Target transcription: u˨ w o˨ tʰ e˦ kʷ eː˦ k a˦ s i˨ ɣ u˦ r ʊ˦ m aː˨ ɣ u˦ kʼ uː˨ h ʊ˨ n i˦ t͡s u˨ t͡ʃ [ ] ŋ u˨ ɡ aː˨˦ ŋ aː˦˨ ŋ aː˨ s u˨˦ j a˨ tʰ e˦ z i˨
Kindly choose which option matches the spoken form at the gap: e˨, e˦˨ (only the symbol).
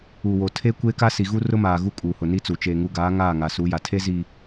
e˨